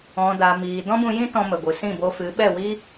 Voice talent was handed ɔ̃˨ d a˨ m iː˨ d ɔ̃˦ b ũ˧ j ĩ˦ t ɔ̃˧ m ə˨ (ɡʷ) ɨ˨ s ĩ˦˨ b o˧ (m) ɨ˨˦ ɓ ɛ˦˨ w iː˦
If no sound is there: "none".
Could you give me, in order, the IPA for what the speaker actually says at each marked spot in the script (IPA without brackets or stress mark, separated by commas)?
ɡʷ, f